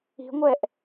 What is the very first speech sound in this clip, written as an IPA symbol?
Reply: i̤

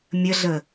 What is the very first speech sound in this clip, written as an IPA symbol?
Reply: mʲ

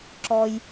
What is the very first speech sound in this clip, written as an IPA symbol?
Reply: ǁ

